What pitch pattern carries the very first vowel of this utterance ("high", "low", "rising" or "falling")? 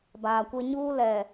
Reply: low